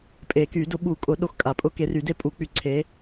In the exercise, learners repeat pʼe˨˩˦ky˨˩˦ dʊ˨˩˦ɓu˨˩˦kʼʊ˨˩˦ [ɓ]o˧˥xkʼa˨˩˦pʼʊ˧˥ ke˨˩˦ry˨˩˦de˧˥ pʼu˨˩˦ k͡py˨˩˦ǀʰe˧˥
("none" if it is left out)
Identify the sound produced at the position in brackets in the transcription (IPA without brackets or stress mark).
ɗ